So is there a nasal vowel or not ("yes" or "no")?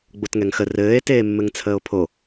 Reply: no